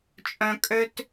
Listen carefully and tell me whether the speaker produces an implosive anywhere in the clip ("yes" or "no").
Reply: no